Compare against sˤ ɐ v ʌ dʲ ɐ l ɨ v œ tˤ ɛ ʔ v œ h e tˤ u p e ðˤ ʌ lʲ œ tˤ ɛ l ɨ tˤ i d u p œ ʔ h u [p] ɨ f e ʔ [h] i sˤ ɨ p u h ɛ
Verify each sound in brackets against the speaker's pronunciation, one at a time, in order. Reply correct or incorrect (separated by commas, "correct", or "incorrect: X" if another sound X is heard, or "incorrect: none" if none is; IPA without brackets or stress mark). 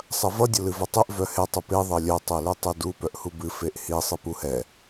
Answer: incorrect: b, correct